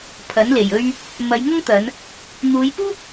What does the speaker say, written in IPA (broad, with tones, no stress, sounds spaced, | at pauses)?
pʰ ɐ˨˥ n l e˨˩ j ɵ˥ ɥ | m ɐ˨˧ j ŋ ɐ˥ ŋ t̪ ɐ˨˧ n | n̪ uː˨˧ j p uː˥ p̚